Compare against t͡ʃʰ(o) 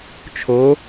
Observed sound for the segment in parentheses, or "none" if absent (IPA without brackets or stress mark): o